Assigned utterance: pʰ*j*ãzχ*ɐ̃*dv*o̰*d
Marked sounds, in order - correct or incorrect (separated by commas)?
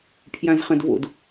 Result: correct, correct, correct